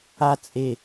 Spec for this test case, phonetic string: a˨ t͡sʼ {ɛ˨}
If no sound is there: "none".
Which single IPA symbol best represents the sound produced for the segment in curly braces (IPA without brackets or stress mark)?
e˨